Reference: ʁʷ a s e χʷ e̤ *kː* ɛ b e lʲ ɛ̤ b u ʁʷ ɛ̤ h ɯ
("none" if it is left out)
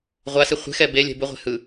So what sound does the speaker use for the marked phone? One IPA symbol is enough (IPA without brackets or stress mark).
x